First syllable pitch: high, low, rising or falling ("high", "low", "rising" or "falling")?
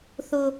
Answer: high